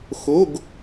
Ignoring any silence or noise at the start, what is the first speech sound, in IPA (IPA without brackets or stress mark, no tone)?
x